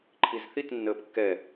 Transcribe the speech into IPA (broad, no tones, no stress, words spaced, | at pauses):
ǃʰizθit nːəːpkːɛ